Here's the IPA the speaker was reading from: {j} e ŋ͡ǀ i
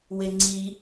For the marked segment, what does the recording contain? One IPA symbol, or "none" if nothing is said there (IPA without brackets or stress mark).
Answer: w